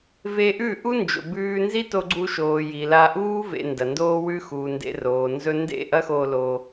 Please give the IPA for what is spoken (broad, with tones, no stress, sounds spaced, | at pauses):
v e˧ ʔ ʉ˦˨ ʔ u˦ n d͡ʒ o̰˨ b ʉː˧ n z i˦ t o˧ ɡ͡ǀ u˧ ʃ oː˨ j i˨ l a˧ ʔ uː˦ v ḛ˧ n d ɐ˨ n d oː˦ w ʉ˦ x uː˨ n d ḛ˧ r oː˨ n z ɵ˧ n d ḛ˦˨ ʔ ɐ˦ x oː˧ l o˧